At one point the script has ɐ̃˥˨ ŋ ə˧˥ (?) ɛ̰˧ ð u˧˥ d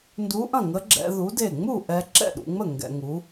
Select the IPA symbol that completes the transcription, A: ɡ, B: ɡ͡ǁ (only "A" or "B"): B